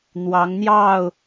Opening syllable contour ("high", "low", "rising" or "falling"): rising